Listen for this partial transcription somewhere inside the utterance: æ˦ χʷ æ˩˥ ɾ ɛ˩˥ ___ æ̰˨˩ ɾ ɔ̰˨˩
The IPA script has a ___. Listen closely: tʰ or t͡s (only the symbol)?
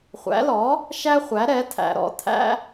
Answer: tʰ